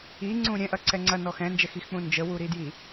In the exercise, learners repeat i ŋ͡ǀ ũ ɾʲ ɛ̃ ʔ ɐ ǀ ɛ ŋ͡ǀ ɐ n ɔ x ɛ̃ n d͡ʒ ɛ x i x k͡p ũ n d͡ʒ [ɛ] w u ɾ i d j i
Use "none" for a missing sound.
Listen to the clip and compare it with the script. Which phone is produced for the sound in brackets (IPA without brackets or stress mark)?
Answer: ə